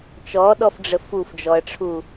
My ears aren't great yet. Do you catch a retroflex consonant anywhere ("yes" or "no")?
yes